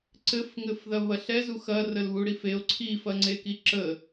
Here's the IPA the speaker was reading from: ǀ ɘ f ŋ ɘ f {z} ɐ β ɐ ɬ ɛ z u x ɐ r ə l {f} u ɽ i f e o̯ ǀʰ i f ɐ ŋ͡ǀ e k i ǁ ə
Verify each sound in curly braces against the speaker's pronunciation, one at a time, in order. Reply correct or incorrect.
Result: incorrect: ð, incorrect: β

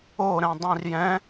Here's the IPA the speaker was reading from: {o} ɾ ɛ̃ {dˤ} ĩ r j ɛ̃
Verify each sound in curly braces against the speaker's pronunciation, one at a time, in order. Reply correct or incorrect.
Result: correct, correct

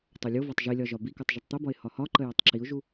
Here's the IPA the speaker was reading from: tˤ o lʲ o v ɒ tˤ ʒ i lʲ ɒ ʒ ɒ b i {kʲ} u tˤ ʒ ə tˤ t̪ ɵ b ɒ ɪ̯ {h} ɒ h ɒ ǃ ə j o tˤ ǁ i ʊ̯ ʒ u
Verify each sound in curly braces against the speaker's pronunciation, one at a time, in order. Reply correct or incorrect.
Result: incorrect: k, correct

